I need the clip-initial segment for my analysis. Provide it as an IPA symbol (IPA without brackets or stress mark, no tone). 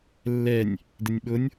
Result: lː